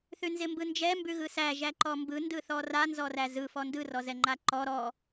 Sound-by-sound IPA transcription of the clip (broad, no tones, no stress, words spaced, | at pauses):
θʉnzɪmbɯnd͡ʒɛ mbʉɣɯsæ ʒæǃɔmbɯ ndɯθɔra nzɔræzɯ fɔndɯ rɔzɛŋ͡ǃaǃɔ ɾɔ